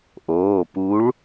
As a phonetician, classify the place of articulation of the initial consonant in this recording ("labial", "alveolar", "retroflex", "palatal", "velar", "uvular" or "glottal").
glottal